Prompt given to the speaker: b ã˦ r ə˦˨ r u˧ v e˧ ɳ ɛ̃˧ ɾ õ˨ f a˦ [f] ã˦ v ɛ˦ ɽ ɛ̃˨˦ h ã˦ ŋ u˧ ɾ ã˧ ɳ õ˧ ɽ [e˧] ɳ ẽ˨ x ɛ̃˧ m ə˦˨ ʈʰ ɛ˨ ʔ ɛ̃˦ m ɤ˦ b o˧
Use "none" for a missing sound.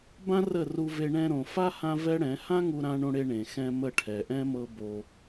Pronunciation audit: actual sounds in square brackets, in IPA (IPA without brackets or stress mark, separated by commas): h, e˧